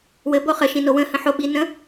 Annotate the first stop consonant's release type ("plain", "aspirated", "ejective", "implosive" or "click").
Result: plain